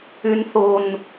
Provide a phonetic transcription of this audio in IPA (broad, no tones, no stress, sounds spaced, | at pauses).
y n θ o n